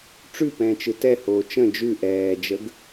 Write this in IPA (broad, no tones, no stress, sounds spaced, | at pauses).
ʈ͡ʂ ʉ p ɛ̃ː t͡ʃ ɯ t ɛ h oː t͡ʃ ə̃ d͡ʒ ʉ ʔ ɛː d͡ʒ ə ɡ